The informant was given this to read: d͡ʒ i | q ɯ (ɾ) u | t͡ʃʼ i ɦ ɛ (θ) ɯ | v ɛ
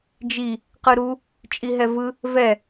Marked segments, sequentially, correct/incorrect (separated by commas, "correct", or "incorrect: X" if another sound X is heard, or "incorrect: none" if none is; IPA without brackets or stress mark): correct, incorrect: v